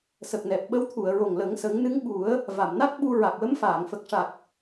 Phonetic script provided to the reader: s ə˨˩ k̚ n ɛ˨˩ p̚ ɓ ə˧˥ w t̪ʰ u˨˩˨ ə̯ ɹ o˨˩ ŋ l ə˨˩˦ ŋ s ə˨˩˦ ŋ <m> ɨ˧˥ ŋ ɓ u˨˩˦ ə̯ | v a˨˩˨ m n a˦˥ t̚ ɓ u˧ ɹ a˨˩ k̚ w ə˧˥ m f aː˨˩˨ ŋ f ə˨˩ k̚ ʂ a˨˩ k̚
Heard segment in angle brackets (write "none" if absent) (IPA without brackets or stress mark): n